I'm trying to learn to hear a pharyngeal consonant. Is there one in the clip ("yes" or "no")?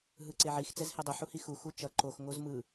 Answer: yes